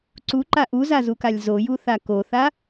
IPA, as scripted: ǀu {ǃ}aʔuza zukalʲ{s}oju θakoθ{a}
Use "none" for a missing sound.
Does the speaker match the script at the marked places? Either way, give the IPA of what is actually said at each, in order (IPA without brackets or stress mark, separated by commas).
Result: ǃ, z, a